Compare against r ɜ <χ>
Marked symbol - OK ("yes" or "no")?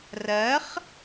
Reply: yes